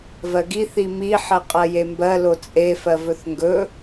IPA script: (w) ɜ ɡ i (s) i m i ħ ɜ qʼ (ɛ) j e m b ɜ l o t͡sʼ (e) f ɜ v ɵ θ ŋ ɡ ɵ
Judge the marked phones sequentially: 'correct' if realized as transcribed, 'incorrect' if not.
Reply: incorrect: v, incorrect: θ, incorrect: ɜ, correct

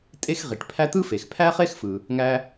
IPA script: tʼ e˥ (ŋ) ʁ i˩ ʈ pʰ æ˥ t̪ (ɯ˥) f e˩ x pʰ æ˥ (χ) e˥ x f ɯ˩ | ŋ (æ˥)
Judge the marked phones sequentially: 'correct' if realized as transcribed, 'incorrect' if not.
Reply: incorrect: x, correct, correct, correct

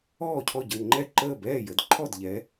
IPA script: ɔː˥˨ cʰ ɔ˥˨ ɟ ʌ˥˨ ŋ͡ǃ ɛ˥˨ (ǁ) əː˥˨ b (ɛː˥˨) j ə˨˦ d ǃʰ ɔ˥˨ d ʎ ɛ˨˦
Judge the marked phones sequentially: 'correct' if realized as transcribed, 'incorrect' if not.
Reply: incorrect: ǃ, correct

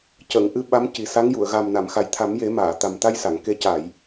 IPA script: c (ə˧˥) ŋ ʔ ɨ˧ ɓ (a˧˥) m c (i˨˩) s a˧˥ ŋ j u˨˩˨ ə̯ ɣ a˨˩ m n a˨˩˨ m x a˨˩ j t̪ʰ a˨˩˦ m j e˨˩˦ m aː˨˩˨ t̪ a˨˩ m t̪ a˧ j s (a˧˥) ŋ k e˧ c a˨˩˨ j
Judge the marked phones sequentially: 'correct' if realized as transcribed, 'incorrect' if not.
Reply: incorrect: ə˨˩˨, correct, correct, incorrect: a˨˩˨

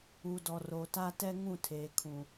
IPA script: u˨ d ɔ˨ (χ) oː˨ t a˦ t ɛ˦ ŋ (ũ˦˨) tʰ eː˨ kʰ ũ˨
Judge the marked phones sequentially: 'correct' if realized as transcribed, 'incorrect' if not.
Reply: incorrect: r, correct

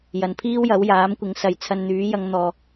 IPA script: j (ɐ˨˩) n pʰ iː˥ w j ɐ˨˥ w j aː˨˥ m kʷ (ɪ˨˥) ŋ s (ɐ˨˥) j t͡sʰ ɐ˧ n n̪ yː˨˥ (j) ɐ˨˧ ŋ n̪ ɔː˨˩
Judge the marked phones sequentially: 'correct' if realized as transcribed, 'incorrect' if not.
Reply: incorrect: ɐ˨, correct, correct, correct

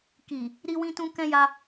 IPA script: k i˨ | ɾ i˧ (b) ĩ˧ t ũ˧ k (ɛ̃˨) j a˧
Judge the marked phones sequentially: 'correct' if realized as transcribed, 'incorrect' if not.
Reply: incorrect: w, incorrect: ɛ̃˧

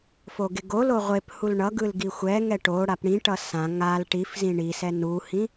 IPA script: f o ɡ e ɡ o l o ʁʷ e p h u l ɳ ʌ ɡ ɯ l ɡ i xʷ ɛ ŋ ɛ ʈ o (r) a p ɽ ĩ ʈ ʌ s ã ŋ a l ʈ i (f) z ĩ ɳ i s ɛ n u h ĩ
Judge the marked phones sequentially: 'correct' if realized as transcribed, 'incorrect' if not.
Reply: incorrect: ɽ, correct

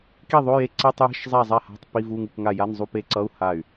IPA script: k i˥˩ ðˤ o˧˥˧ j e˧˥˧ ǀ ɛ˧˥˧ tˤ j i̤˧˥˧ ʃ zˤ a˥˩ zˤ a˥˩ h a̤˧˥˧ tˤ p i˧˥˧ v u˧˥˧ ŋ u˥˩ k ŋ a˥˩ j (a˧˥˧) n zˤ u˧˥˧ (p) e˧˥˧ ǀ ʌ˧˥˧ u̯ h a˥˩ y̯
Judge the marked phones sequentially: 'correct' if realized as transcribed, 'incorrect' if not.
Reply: correct, correct

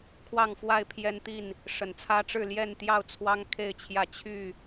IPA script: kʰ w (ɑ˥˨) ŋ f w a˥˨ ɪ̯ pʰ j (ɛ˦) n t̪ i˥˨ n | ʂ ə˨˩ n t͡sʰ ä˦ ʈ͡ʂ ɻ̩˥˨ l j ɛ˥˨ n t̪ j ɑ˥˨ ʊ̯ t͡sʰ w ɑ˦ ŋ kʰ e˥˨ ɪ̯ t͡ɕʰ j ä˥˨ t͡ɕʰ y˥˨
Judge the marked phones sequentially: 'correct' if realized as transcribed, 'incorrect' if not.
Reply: correct, correct

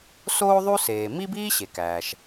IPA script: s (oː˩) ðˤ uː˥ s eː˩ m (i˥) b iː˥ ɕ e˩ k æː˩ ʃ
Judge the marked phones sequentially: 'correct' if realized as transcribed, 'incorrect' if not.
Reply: incorrect: oː˥, correct

